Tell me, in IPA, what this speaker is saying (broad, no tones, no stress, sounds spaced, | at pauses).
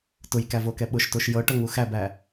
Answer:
t ʊ j k æ v o k ɛ ɓ ʊ ʃ t o ʃ j ɤ ʈ ɤ ŋ u x æ b æ